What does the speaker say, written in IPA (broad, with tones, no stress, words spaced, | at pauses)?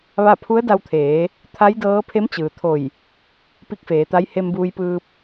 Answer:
ʋa˥˨ pʰu˧˥ə̯da˧wt̪ʰeː˩˧ | t̪ʰa˧˥jdɤː˧˥ pʰe˧˥mt͡ɕɯː˩t̪ʰo˧˩j | pi˧˥k̚feː˩˧t̪a˧˥j he˧mbuː˧jpɯː˧p̚